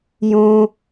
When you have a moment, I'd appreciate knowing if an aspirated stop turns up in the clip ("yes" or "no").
no